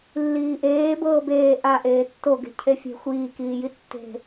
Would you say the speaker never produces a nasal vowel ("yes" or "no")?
yes